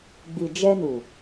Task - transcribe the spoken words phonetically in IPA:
ɡ͡b i˨ d͡ʒ ɛ˧ n u˨

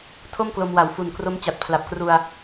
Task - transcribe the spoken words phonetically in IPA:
tʰ o˥˩ m k l o˧ m w a˨˩ w f u˨˩ n k r o˦˥ m t͡ɕ a˨˩ t̚ pʰ l a˨˩ p̚ k r u˧ a̯

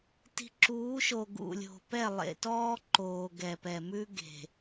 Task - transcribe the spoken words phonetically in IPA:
t i̤˨ ǁ uː˨˦ ʃ o˨ ɡ ṵ˨ lʲ o̤˨ p ɛ˦˨ lˠ ḛ˨ t ɔː˦ ǃ oː˨ ɡ ɛ˨ p ɛ˨ m ʉ˦ ɡ e̤˨

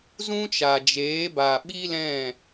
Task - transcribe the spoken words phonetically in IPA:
z ũ˦ t͡ʃ a˨ d͡ʒ eː˨˦ b a˨ ɓ i˦ l ɛ̃˦˨

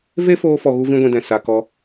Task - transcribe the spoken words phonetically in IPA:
v e˦ f oː˧ f ɔ˨ ɣ u˦ v ĩ˦ ɡʷ ĩ˧ d ɛ̃˨ s a˨ k ɔ˧

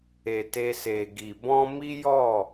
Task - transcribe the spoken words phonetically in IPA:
e˨ t e˧ s e˨ ɡ i˨ b ɔ̃˧ m i˦ j ɔ˦˨

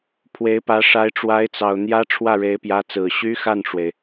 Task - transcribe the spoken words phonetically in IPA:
pʰ w e˧˥ ɪ̯ p ä˧˥ ʂ a˧˥ ɪ̯ ʈ͡ʂ w a˧˥ ɪ̯ t͡s ɑ˨˩ ʊ̯ n̪ j ä˥ ʈ͡ʂʰ w ä˥˩ ɻ e˧˥ ɪ̯ p j ä˧˥ t͡s ɹ̩˨˩ ɕ y˥ x a˥˩ n ʈ͡ʂ w e˩ ɪ̯

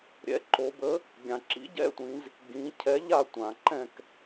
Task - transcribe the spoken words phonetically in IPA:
ɾʲ ɛ̰˨˥ ǃ o˩˧ b ə˨˥ | ɡʲ ã˩ ǁ ḭ˨˥ ɟ ɛ̰˥˨ tʷ ĩ˩˧ z | ɡ ĩ˩˧ cʰ ɛ˨˥ ʎ a˥˨ tʷ ã˩ ǃ ɛ̃˥˨ k

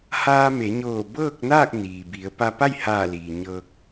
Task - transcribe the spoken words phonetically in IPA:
h aː˧ m e˩˧ ɲ oː˧˩ b ɤː˥˨ k̚ n aː˥˨ k̚ n iː˩ b i˩˧ ə̯ p a˧ p a˥˨ j h aː˧˩ l iː˩ ɲ ɤː˧ k̚

